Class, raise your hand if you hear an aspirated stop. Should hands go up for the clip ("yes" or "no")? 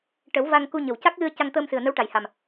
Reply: no